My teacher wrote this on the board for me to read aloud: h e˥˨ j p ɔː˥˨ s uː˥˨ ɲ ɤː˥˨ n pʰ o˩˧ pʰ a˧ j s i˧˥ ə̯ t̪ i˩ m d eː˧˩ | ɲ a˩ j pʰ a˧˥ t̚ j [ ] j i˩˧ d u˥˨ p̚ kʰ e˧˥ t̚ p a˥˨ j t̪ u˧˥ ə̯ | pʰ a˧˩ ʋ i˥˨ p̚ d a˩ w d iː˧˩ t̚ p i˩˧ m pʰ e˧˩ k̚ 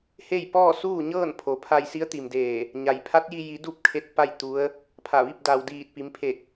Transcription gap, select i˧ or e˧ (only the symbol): i˧